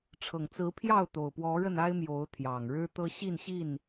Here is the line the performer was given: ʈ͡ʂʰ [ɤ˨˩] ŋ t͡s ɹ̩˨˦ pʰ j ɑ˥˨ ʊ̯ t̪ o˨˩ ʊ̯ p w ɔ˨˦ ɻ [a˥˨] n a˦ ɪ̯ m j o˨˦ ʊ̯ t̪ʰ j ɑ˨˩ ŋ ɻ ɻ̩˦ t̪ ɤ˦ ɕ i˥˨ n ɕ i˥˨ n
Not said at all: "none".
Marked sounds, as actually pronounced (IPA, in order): ɤ˨˩, ə˥˨

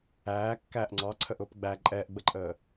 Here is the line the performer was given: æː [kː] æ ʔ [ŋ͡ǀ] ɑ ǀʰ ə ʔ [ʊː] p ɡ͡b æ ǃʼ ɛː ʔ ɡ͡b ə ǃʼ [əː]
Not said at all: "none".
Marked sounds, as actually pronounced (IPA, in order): kː, ŋ͡ǀ, ʊː, əː

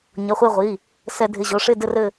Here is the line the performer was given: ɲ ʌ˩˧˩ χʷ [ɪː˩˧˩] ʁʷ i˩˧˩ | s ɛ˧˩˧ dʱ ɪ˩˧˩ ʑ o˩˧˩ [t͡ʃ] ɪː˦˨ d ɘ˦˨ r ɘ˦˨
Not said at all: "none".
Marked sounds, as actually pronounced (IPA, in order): ɪː˦˨, ʂ

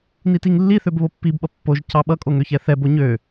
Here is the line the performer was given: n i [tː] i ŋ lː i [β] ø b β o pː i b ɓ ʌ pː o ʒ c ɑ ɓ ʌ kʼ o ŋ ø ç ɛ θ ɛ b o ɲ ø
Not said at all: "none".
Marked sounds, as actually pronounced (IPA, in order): t, θ

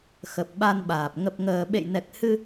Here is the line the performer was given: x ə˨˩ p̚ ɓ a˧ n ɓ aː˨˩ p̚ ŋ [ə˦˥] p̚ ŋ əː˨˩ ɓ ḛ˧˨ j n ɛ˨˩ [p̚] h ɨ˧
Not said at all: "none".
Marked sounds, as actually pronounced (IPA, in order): ə˨˩, k̚

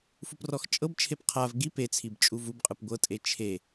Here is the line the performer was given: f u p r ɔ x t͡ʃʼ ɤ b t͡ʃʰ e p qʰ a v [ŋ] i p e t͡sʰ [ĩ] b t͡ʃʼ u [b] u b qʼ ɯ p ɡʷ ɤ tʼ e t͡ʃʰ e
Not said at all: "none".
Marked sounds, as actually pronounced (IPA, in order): ɡ, i, v

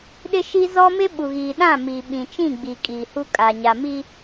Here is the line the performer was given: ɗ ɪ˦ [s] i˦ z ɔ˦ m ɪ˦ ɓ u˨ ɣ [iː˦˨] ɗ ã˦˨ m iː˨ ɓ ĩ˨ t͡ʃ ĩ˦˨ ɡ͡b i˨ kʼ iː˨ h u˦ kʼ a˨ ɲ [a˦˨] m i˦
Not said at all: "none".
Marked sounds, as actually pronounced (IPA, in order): ʃ, iː˨, a˨

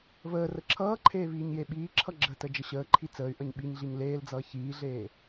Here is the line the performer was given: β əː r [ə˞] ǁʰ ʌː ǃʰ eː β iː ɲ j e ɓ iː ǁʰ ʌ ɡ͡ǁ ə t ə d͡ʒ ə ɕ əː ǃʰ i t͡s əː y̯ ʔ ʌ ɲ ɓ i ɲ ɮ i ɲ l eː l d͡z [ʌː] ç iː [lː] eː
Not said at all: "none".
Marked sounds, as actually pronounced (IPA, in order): ə, ʌː, ɮ

